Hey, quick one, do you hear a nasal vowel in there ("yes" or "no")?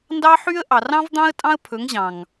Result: yes